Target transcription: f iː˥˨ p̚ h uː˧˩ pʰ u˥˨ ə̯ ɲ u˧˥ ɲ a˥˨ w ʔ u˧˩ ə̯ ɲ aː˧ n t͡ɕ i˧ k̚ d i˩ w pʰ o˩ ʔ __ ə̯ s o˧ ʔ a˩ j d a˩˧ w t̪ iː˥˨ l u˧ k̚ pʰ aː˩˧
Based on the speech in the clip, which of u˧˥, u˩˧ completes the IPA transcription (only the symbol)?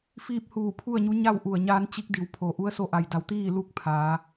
u˧˥